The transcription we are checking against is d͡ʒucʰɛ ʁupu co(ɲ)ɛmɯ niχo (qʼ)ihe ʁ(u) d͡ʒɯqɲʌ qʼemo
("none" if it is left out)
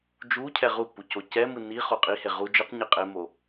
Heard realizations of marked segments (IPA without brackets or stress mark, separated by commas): c, qʼ, u